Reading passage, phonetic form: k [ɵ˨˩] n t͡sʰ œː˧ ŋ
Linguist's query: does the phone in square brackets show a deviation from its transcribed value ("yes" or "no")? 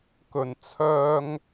no